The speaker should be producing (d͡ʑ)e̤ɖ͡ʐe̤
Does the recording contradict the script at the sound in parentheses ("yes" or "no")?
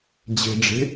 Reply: no